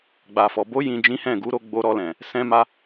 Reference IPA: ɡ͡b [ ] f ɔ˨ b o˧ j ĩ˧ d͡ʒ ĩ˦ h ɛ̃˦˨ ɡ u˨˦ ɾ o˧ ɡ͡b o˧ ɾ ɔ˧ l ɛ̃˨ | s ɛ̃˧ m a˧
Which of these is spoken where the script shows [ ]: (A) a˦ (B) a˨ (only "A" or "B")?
B